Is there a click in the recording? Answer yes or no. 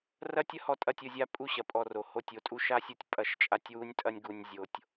no